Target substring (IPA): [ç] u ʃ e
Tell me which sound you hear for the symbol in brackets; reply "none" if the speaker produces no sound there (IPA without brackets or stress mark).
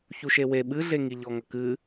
ç